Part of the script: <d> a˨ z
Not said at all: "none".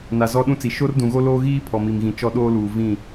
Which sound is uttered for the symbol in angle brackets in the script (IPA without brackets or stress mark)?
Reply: n